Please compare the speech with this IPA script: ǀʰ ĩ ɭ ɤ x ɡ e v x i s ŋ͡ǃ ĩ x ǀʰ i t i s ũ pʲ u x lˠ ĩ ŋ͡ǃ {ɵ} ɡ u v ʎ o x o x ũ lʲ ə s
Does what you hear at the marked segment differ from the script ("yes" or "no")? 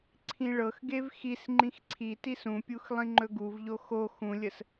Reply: no